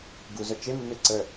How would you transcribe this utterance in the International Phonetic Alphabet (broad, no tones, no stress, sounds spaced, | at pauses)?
ɡ u z œ t͡ʃ e mː e ǀ ə